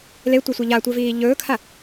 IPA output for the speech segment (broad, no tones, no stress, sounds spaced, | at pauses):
l e tʷ œ sʷ e ʎ a tʷ œ v iː ʎ ɵː kʰ a